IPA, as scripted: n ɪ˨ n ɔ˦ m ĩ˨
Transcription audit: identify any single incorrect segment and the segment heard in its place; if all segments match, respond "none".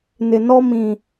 none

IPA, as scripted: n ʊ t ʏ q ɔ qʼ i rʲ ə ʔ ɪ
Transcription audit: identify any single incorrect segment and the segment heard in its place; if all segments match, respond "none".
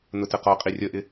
ʏ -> ə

